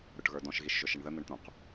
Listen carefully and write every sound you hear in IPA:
ɾ ʊ ʈ ɣ ə˞ d ɔ̃ ʃ ɣ i ʃ ʒ ʊ ʃ ɪ ɳ ð ə n̪ ə ɳ t̪ ũ q

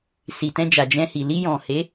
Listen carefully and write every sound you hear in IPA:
s i˨ t ɛ̃˧ d͡ʒ a˨ d͡ʒ ɛ̃˧ h i˨ l i˧ j ɔ̃˨ h e˨˦

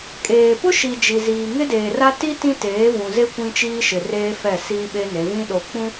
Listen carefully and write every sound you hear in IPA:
kʼ eː˨ p ʊ˦ ʃ i˨ d͡ʒ i˨ z iː˨ ŋ ɪ˦ d eː˨ r a˦ t i˦ t ĩ˦ t eː˨˦ v ũ˨ z e˦ kʷ ĩ˦ t͡ʃ iː˦ ʃ ɪ˨ r eː˦ f ɛ˦˨ s iː˦ ɓ e˦ n e˨˦ v ĩ˦ ɗ o˨ k͡p ũ˦

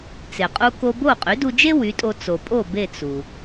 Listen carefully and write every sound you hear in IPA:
t͡s e˩ qʼ u˧ k o˧ b o˥˩ qʼ y˩˥ d u˧ d͡ʒ e˥ w y˩˥ tʼ o˧ t͡s o˩ pʼ o˥˩ b e˥˩ t͡s u˩

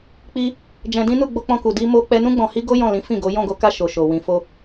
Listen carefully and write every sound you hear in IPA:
k͡p i˧ | d͡ʒ ɛ̃˧ d ĩ˦ n u˦˨ ɡ͡b o˧ k͡p ɔ̃˧ k u˨ d i˧ m o˧ k͡p ɛ˧ n ũ˦ ɡ͡b ɔ̃˧ h i˦ ɡ o˦ j ɔ̃˦˨ l ĩ˨˦ f ĩ˦˨ ɡ o˨˦ j ɔ̃˦˨ ɡ o˨˦ k a˧ ʃ o˨ ʃ o˨ w ĩ˧ f o˦

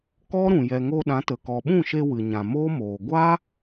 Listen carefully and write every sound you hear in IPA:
k ɔ˦ ɾ ũ˨ j ɛ˨ ŋ o˧ ɗ ã˨˦ t ə˨ k ɔ˨ ɓ ũ˦˨ ʃ e˧ w ɨ˨ ɲ ã˨ m oː˦ m oː˨ ɡʷ a˦

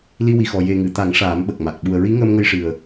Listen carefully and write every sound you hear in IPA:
l i˧ w i˨˩ x ɔ˨˩ j e˨˩ ŋ ɨ˨˩˨ t̪ a˨˩˦ ŋ ʂ aː˨˩˦ m ɓ ə˨˩ k̚ m a˨˩ k̚ ɓ u˨˩ ə̯ ɹ i˧˥ ŋ əː˧ m ŋ ə˧ j ʂ ɨ˨˩ ə̯

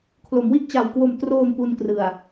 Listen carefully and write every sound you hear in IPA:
kʰ l o˩˦ m w i˥˩ ʔ t͡ɕ a˨˩ w k w o˨˩ m t r oː˨˩ m p u˧ n k r ɯ˨˩ a̯

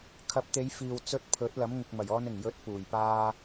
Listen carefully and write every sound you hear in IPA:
kʰ ɐ˨˥ p̚ t̪ e˨˧ j f iː˨ w t͡s ɵ˧ t̚ pʰ ɵ˨˥ t̚ l ɐ˨˥ m ŋ ɪ˨ k̚ m ɐ˨˩ j ɔː˧ n ɪ˨˩ ŋ j ɵ˨˥ t̚ p uː˨˩ j p aː˥

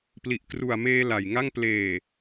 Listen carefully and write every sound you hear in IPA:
p l i˨˩ ʔ k r u˨˩ a̯ m eː˧ l a˨˩ j ŋ a˥˩ ŋ p l eː˨˩

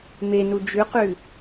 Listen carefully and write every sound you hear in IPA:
m e n u d͡ʒ ʉ q ʉ

